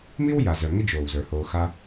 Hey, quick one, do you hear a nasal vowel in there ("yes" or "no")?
no